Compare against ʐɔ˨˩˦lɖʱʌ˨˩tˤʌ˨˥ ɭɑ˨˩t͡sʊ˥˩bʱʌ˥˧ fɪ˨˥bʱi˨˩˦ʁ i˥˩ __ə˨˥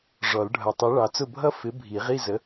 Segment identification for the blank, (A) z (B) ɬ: A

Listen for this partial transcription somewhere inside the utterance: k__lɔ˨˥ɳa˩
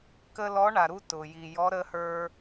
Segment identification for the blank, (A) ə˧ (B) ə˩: A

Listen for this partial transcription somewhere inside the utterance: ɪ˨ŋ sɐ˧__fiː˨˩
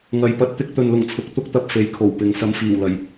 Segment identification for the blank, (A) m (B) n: A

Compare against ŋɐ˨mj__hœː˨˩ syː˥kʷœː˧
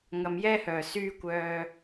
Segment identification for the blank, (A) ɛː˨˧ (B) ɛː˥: B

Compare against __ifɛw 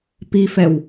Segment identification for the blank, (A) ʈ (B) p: B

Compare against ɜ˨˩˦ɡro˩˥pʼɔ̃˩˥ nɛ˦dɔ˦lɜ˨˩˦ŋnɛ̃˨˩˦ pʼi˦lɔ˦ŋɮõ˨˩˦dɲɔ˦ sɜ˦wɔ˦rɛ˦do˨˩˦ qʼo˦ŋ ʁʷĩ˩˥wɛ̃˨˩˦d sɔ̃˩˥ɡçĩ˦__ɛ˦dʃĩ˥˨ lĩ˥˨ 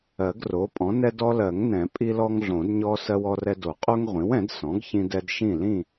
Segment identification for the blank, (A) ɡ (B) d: B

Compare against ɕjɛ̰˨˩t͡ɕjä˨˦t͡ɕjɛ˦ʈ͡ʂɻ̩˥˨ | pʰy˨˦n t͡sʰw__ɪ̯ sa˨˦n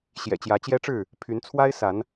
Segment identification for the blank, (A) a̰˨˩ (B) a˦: B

